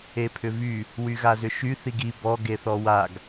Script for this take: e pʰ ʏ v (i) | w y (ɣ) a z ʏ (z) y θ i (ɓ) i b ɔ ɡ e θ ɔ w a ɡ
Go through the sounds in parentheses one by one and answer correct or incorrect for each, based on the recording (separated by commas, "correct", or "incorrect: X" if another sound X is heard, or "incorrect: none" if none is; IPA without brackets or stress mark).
incorrect: y, correct, incorrect: ʃ, incorrect: ɡ